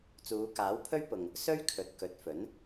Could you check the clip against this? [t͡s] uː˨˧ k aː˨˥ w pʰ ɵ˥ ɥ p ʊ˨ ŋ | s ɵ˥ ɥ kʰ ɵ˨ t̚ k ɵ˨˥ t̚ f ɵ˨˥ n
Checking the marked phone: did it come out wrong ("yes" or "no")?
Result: no